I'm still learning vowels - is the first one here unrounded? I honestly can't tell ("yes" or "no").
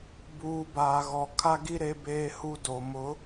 no